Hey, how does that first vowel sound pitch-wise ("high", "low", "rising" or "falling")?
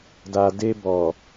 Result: low